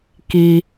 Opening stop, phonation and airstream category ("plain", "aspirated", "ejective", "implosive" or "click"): plain